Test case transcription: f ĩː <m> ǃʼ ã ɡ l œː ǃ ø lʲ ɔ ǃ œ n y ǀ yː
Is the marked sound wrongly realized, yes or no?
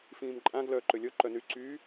no